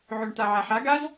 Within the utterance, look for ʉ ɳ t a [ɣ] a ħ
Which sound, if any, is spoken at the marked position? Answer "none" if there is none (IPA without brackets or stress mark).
ʕ